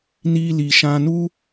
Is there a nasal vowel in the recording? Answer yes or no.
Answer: yes